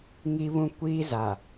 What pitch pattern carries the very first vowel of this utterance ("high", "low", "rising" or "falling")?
high